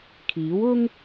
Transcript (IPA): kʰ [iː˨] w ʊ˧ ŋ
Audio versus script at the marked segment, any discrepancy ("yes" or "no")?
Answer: yes